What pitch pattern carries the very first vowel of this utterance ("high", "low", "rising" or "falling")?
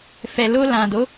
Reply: low